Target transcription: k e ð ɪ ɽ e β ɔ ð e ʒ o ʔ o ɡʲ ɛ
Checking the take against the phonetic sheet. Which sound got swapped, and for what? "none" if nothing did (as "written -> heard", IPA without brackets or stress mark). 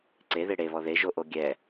k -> ǀ